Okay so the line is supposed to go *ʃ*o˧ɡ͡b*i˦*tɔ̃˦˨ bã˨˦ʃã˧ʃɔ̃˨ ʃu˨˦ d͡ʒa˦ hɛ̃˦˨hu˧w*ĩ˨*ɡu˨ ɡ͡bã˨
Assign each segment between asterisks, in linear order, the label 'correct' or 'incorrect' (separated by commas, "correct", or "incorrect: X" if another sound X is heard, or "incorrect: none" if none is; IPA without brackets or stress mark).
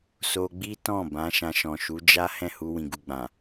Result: incorrect: s, correct, correct